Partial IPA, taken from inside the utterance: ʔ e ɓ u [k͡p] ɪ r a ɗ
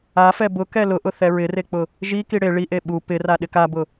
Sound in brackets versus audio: incorrect: p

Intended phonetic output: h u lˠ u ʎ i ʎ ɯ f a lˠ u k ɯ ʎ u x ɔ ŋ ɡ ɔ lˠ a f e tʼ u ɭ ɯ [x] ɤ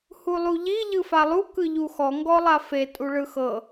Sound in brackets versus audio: correct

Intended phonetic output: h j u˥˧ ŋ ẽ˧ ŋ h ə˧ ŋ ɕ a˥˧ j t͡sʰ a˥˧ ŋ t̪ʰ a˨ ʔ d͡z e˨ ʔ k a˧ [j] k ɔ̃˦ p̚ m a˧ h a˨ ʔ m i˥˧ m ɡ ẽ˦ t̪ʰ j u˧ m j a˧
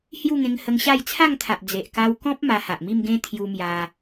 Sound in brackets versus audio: incorrect: w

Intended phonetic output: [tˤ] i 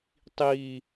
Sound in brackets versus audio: correct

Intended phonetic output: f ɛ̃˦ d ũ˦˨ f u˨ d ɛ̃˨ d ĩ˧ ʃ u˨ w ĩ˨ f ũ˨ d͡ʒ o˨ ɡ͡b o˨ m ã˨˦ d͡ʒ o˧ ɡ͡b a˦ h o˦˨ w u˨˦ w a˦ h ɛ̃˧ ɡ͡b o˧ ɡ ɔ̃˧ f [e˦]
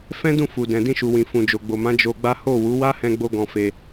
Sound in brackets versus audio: incorrect: e˧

